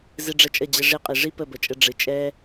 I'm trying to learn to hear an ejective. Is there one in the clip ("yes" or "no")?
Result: yes